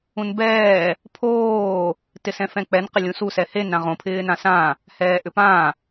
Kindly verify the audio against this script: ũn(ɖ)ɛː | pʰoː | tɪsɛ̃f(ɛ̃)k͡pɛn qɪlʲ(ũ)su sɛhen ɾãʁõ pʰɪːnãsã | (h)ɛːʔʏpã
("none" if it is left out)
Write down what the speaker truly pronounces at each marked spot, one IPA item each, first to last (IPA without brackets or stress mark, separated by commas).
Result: b, ɛ̃, ũ, h